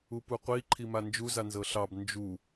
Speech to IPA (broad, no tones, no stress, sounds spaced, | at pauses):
u p u qʷ i ǃʰ i m a n d͡ʒ u z a n z ɤ ɬ ɑ b n d͡ʒ u